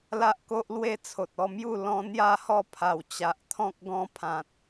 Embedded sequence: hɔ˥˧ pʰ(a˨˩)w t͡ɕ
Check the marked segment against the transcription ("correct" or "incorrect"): correct